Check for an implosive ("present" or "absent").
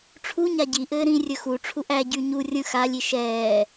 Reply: absent